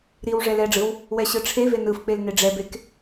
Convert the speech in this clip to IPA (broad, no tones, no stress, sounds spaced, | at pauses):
ɾ i w ʐ ɛ l ɛ ɖ͡ʐ ɯ w | w ɛ ɕ ɯ ʈ͡ʂʰ e v e n ɯ f k͡p e l n e ɖ͡ʐ ɛ b e k